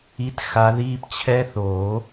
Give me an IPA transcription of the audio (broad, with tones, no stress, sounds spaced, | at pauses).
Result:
i˧˥˧ t x a˨˦ ð iː˦˥ p t͡ɕʰ ɛ˦˥ θ o˨˩˦